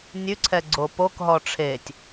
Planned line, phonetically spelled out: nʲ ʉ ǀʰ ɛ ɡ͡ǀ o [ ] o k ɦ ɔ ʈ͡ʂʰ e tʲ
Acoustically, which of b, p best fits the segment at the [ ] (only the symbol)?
p